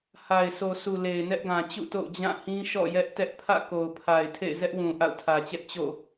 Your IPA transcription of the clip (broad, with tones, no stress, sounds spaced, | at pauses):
h a˨ ɪ̯ s o˨ s u˨ l e˨ ɪ̯ n ɛ˦ ʔ ɡ ã˨ t͡ɕ ṵ˦˨ t o̰˦˨ ʊ̯ d͡ʑ ã˦˨ h ĩ˦ ʃ ɔ̰˦˨ j ɛ˦ ʔ t ɛ˦ ʔ pʰ ä̰˦˨ k o˨ ʊ̯ pʰ a˨ ɪ̯ tʰ ḛ˦˨ ɪ̯ z ɛ˦ ʔ w ũ˨ ʔ a̰˦˨ ʊ̯ tʰ ä˨ t͡ɕ ɛ˦ ʔ t͡ɕ o̰˦˨